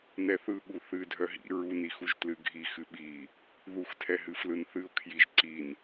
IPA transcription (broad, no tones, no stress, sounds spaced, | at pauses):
n ɛ θ ɯ ɠ u θ ɨ dʱ œ ɦ ḭ ɹ u n i x u ʒ t l ɨ ɡʱ i x ɨ ɓ i | ð u x tʰ ɛ ɦ ɨ f l ɯ n θ ɨ ʊ̯ kʰ j i ʒ ǀ i n